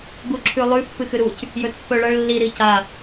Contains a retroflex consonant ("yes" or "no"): yes